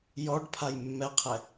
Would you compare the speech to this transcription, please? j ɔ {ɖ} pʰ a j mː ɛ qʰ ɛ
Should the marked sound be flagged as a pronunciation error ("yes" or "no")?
no